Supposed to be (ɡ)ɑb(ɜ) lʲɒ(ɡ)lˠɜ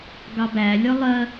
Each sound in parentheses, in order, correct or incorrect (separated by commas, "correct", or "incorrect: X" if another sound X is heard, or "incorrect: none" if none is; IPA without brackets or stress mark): correct, incorrect: æ, incorrect: none